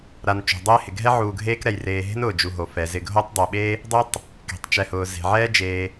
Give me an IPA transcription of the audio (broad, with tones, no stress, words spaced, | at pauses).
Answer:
ɾa˨n t͡ʃṳ˩dˤeː˥hɪ˩ ɡʱɛ˥ʕuː˨ɡʱeː˦kɾɛ˩j reː˨ɦe̤˥n ʊː˩d͡ʒu˨ɦo˩fɛ˩ zɪ˨ɡʱo˦tˤdˤe˩ɓe˥ | dˤɛ˥tˤ | ke̤˩tˤt͡ʃɛ˨hʊː˩ ze̤˩ʕɛː˥ d͡ʒeː˨